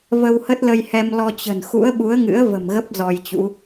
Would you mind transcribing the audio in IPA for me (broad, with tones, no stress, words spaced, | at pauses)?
və˧whə˦˥t̚lə˧jhɛ˧m lɔ˧t͡ɕə̤˨˩n xṵ˧˥ə̯ɓu˨˦ə̯ŋɨ̰˧˥ə̯ və̤˨˩mɣə˦˥p̚ zɔ˧jt͡ɕṵ˧˥